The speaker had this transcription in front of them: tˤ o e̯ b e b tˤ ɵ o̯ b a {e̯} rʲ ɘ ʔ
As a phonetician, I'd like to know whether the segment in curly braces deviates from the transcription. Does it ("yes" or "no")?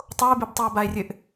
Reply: no